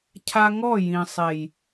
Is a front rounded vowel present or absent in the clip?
absent